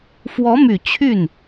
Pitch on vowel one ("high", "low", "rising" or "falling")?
rising